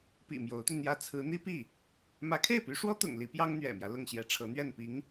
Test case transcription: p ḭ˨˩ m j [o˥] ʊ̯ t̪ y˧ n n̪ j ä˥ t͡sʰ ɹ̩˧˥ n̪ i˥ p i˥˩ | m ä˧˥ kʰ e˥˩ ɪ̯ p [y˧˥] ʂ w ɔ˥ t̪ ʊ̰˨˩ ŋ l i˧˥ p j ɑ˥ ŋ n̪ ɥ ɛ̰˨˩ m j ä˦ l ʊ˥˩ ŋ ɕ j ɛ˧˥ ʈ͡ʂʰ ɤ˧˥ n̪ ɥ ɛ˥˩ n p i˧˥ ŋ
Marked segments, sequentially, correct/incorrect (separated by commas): incorrect, correct